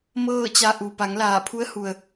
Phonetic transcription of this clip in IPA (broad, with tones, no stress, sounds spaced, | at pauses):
m ɤː˥˨ t͡ɕ a˧ ʔ u˩ p a˩˧ ŋ l aː˧˩ pʰ u˧˥ ə̯ h u˩ ə̯